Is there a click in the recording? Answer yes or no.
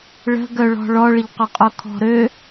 no